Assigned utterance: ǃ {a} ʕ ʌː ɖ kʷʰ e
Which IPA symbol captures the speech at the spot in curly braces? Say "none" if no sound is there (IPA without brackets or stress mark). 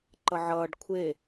ʌ